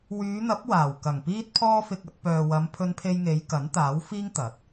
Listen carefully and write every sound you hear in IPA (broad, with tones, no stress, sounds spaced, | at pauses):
w yː˨˧ n̪ ɐ˨˥ p̚ w aː˨˩ w k ɐ˨˩ ŋ p iː˥ t̚ pʰ ɔː˥ f ɪ˧ k̚ ɐ˧ t̚ p œː˨ w ɐ˨˧ m pʰ ɵ˧ n pʰ e˧ j ŋ e˨˧ j k ɐ˨˥ n t̪ aː˨˥ w f iː˥ ŋ t̪ ɐ˨˥ t̚